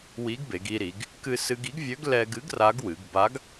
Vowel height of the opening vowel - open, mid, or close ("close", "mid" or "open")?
close